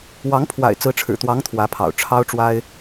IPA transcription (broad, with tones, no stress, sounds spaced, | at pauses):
w ɑ˧˥ ŋ pʰ w a̰˨˩ ɪ̯ t͡s ɹ̩˧˥ ʈ͡ʂʰ ɻ̩˨˩ t̪ w ɑ˧˥ ŋ t̪ʰ w ä˧˥ pʰ ɑ̰˨˩ ʊ̯ ʈ͡ʂʰ ɑ˥ ʊ̯ ʈ͡ʂ w a˥ ɪ̯